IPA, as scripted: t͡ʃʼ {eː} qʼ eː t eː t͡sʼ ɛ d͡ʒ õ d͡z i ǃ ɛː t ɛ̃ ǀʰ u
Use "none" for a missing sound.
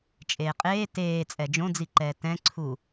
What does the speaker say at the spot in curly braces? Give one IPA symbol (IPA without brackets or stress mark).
eː